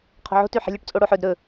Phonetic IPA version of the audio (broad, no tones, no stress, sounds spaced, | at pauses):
qʰ o̤ ʕ o̤ t ʉ ħ ɛ̤ lʲ ɵ ʈ t͡sʼ o ɽ o ħ ɵ d ɾ ɵ